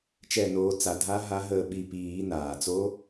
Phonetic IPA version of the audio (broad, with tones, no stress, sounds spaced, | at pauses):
t͡ʃ ɛ˦˨ n oː˨˦ t͡s a˨˩˦ dʱ a˦˥ ɦ a˦˥ ɦ əː˦˨ ɓ i˦˨ p iː˨˩˦ n aː˩ t͡s o˦˥